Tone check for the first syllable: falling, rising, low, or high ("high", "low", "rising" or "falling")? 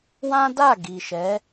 high